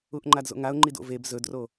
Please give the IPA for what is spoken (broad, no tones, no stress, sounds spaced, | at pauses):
u ʔ ŋ͡ǃ a d z o̰ ŋ a ʊ̯ ŋ͡ǃ i d o̰ v e b z ɵ d r o